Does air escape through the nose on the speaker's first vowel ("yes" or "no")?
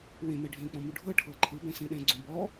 yes